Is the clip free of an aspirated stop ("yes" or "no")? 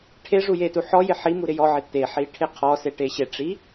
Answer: no